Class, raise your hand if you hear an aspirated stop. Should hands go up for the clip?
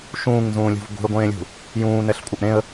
no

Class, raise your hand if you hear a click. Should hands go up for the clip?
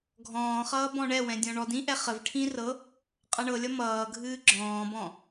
yes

